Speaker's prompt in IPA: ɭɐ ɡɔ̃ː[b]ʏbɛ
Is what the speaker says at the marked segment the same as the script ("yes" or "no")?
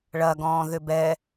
no